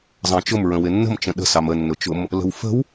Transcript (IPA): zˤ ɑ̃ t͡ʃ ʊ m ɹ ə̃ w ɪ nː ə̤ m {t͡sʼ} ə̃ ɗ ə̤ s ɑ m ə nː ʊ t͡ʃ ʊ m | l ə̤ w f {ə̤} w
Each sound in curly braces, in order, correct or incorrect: incorrect: t͡ʃ, correct

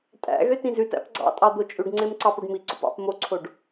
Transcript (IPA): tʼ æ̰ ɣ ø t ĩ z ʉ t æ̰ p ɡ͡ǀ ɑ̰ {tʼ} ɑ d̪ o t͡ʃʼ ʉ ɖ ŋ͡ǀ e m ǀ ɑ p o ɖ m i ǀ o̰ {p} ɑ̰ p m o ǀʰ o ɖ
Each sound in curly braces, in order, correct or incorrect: correct, correct

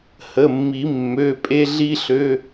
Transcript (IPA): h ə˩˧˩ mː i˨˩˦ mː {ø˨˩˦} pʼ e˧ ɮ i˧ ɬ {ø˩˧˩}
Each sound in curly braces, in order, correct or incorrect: incorrect: ø˩˧˩, correct

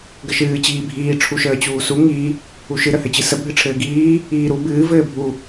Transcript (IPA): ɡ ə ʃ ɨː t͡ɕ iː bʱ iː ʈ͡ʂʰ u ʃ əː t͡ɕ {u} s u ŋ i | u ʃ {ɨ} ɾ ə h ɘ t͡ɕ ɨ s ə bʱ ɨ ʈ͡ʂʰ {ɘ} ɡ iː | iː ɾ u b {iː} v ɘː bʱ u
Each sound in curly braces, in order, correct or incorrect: incorrect: uː, correct, incorrect: ɘː, incorrect: ɨː

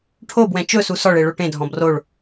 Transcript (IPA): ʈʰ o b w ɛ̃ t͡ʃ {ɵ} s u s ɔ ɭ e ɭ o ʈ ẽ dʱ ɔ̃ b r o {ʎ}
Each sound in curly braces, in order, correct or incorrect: correct, incorrect: ɭ

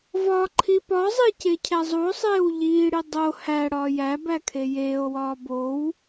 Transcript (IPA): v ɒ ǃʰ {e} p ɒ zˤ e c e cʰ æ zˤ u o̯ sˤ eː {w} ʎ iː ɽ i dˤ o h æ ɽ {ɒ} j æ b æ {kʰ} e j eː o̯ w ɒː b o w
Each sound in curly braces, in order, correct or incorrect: incorrect: i, correct, incorrect: ɒː, correct

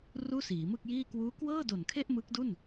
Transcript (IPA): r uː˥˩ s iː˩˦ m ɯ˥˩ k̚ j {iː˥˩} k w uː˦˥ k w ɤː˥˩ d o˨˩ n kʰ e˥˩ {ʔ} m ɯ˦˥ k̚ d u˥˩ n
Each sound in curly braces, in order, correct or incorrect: correct, correct

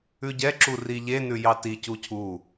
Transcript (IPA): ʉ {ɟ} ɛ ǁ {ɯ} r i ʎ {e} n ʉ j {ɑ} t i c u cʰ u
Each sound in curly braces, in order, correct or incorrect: correct, incorrect: u, correct, correct

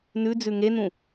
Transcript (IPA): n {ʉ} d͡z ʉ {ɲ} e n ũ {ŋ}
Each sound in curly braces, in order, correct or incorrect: correct, incorrect: ŋ, incorrect: none

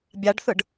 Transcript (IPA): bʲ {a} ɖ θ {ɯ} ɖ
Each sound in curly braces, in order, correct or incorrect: correct, correct

